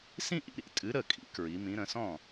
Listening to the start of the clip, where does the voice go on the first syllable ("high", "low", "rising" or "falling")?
falling